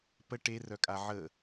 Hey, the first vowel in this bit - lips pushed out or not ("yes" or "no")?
no